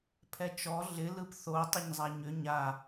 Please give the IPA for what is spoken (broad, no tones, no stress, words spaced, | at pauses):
pʰɛt͡ʃɔ ɮɪ lɯpθo tˤɪɲzˤaɲʏ ɲa